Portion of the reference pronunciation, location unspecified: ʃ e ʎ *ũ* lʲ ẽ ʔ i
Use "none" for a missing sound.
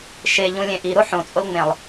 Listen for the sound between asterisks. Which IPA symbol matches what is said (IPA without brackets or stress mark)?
ũ